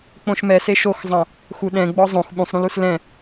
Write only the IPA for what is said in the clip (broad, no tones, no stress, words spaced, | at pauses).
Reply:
k͡põʃmɛ seʃoxzˤã | xuɗɛ̃ ɡ͡bɔzˤõx ɓũsˤɾũlus lɛ̃